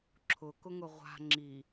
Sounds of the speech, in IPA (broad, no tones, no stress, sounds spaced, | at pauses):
ǁʰ ʊ k ʊ ŋ ʊ ʁʷ a̤ ŋ͡ǁ i